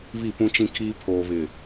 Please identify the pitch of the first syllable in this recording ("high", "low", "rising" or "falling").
falling